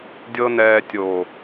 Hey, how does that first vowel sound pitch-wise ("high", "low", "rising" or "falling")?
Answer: high